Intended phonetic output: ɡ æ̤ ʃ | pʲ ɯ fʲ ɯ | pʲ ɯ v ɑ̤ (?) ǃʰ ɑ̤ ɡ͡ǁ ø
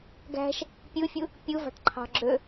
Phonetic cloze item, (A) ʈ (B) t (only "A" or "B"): A